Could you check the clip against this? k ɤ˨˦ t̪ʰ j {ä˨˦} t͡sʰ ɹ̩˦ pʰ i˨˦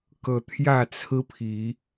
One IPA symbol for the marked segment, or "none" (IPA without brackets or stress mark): ä˥˨